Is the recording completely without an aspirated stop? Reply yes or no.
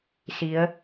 yes